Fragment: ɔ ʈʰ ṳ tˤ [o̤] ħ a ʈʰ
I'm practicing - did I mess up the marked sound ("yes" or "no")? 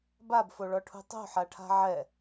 no